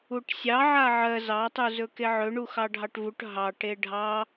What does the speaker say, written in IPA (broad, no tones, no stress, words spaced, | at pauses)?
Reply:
uʈsʲɑ ʕaʕɜ zɑ tˤuzɵkeʕɵ ɳuxɑɖʱɑʈvuʈ ɦɑ ʈeɖʱɑ